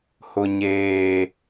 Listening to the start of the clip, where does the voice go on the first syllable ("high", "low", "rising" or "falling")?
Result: low